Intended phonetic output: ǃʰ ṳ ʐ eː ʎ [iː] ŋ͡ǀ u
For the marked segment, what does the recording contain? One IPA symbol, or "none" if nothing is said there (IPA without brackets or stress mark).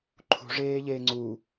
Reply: eː